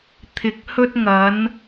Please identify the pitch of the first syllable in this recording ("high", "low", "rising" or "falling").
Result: low